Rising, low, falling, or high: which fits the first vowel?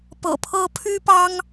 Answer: low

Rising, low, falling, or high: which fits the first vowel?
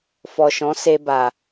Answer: low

